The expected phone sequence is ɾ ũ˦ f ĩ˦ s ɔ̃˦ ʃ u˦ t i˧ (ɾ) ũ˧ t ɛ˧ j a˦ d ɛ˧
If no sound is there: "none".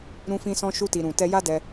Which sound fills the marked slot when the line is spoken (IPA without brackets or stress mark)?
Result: ɾ